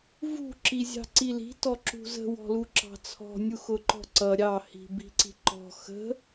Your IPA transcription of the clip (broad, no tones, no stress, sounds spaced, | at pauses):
v ṳ ǁ i zʲ ɑ̤ ǀ i l i̤ t ɔ ǁ ṳ z ə̤ w ɔ̤ l u ǁ ɑ̤ t͡sʰ ɔ̤ nʲ u x ʊ ǃ ɔ̤ ǀ ʌ ɾʲ ɑ h i̤ b i̤ ǀ i̤ ǃ ɔ̤ x ə̤